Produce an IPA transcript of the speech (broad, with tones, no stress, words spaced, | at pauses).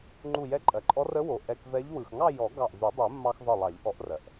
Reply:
ŋ͡ǃu˧˩jɛ˧˥ǃʼɜ˩ǃʼɔ˧˥r ə˧˥wo˩ ʔɛ˧˩kvɛ˧˥ʎ wɯ˩xŋɑ˥˧jɔ˨˩˦ ɡɑ˧˩ʔvy˨˩˦dˤu˨˩˦mːɑ˧x ðˤɯ˧˩lˠɑ˨˩˦ʎʔɔ˨˩˦ʔrɜ˩ʔ